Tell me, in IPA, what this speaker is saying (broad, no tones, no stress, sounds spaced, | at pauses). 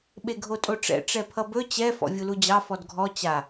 ɓ e ɡʱ o tʼ o ʈ͡ʂ ɛ̰ ʈ͡ʂ ɛ pʰ ʌ b ɵ t͡ɕ ɛ f ɔ̰ vʲ u l u d͡ʑ ɑ f ɔ d ɡʱ ɔ t͡ɕ a